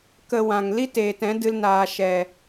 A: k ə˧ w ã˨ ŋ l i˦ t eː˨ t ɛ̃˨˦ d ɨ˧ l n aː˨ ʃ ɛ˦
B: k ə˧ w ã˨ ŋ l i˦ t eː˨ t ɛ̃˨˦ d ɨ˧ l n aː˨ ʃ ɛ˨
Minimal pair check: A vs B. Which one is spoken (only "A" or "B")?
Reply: B